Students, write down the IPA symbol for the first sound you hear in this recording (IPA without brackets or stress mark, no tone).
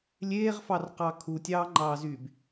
lʲ